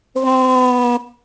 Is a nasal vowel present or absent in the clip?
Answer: present